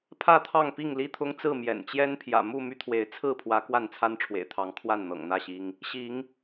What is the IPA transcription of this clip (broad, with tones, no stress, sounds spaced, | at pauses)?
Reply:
pʰ ä˥˨ t̪ʰ ɑ˥˨ ŋ p i˥˨ ŋ l i˦ t̪ʰ ʊ˦ ŋ t͡s ɹ̩˥˨ m j ɛ̰˨˩ n t͡ɕ j ɛ˦ n pʰ j ä̰˨˩ m u˥˨ m y˦ t̪ʰ w e˨˦ ɪ̯ t͡sʰ ɹ̩˥˨ pʰ w ä˨˦ k w a˥˨ n t͡sʰ a˦ n ʈ͡ʂʰ w ḛ˨˩ ɪ̯ t̪ʰ ɑ˨˦ ŋ kʰ w a˥˨ n n̪ ɤ̰˨˩ ŋ n̪ ä˥˨ ɕ i˦ ŋ | ɕ i˨˦ ŋ